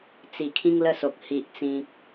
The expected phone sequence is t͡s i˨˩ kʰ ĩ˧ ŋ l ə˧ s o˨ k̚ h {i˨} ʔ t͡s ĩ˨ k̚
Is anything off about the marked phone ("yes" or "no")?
no